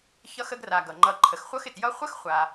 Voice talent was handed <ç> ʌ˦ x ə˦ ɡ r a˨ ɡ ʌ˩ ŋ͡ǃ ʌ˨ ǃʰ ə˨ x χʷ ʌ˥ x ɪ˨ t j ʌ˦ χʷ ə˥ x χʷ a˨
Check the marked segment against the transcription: correct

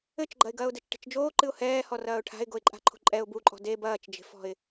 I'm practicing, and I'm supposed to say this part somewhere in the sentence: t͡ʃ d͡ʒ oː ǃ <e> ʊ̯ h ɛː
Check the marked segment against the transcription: incorrect: ɨ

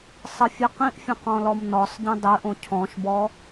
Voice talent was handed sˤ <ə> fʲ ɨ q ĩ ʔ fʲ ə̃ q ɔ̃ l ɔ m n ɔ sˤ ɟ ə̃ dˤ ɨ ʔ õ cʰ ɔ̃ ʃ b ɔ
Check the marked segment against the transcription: correct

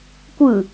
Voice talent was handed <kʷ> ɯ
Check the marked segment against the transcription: correct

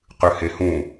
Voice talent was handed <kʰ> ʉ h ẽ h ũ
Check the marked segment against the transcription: incorrect: q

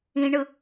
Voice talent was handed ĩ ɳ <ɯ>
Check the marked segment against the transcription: correct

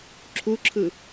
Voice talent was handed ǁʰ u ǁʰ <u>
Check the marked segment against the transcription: incorrect: ɯ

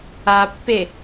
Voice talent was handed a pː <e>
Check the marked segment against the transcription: correct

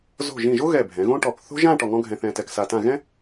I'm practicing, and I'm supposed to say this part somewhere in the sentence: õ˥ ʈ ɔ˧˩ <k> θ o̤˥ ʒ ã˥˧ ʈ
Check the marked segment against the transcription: correct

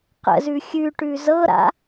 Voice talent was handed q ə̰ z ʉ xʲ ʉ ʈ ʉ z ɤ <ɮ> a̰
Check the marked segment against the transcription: incorrect: ɾ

